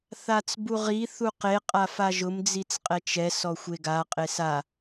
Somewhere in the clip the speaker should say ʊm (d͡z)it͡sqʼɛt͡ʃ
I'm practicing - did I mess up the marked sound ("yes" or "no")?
no